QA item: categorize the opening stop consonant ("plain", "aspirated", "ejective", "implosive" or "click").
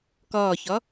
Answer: plain